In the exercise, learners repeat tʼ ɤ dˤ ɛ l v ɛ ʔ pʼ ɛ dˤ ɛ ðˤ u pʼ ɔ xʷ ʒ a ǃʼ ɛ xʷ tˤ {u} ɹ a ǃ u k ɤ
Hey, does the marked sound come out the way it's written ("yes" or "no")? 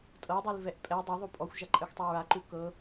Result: yes